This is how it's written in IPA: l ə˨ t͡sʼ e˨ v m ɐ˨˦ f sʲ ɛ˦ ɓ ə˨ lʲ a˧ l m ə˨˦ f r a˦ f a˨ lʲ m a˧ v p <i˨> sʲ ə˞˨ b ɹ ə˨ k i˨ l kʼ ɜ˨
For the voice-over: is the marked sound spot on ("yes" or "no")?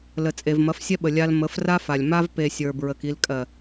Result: no